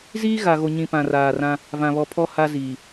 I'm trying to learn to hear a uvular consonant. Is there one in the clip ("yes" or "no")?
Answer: no